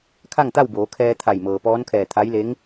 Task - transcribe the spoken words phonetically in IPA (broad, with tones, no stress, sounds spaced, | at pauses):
kʰ a˥˨ ŋ t̪ a˥˨ w b oː˩˧ kʰ ɛː˧ t̪ʰ a˧˩ j m ɤː˩ p ɔː˧˥ n kʰ ɛː˧˩ t̪ʰ a˧˥ j l e˧˥ ŋ